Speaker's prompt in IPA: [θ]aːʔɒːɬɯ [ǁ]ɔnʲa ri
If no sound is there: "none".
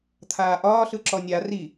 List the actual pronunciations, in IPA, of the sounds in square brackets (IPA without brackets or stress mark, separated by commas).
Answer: t̪ʰ, ǁ